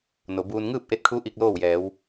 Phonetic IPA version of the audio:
no˩buː˧n ŋɯː˥˨p̚ʔe˧t̚kʰu˧˥ ʔi˧k̚loː˥˨wjɛː˩˧w

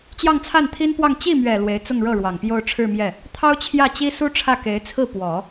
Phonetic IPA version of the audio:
t͡ɕjɑ˥˧ŋt͡sʰa˥˩nt̪ʰi˥npwɑ˥˧ŋ t͡ɕi˥˩mɥɛ˨˩ lwe˧˥ɪ̯t͡sʊ˥˧ŋɻɤ˥˩ ɻwɑ˨˩ŋpjo˥˧ʊ̯ʈ͡ʂʰɻ̩˥˧mjɛ˥˩ | t̪ʰɑ˥ʊ̯t͡ɕʰjä˥˩t͡ɕi˥su˥ ʈ͡ʂʰä˥˩ke˧˥ɪ̯t͡sʰɹ̩˥˩ pwɔ˨˩˦

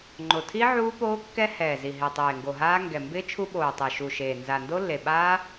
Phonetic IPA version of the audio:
ŋ͡ǃo˨˩tʰi˦˥ ʕuː˦˥poː˦˥kːɛ˦˥ hɛː˨˩zi˨˩ ɦɪː˨˩tˤeː˨˩ŋɡo˨˩ɦaː˦˥ ŋɡɛ˨˩mbɪː˦˥ t͡ʃʰu˦˥ɓoː˨˩tˤe˨˩ ʃu˨˩ʃeː˨˩ nza˨˩ ndo˦˥lːe˨˩ɓaː˦˥

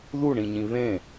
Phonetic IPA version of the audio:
ðuɳĩɲĩ βẽ

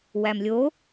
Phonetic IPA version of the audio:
wæmlʲo

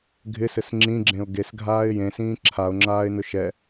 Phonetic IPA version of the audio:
ɡʱɪsɘs ŋ͡ǁĩɡ͡ǁẽʊ̯ ɡesɡʱaːɪ̯ jẽsĩː ǁʰaʊ̯ŋ͡ǁaːɪ̯nʊ ʃɛ

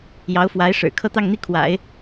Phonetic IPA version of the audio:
jɑ˧˥ʊ̯ fwa˧˥ɪ̯ʂɻ̩˨˩ kʰɤ˥˧t̪ɑ˥˧ŋn̪i˥˩ kʰwa̰˨˩˦ɪ̯

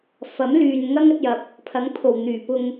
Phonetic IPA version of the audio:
fɐ˨˥m lyː˨nŋɐ˥ŋ ɐ˨˥t̚jɐ˧p̚ | pʰɐ˨˥ŋpʰo˨˩w n̪yː˨˩pʊ˧ŋ

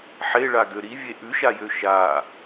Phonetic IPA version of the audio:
ħeɭaɡø ɾivʲe ʔʉʃajø ʃa

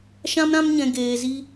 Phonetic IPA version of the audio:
ʃã˦mɾã˦mɲɛ̃˧ ɡeː˧zi˦

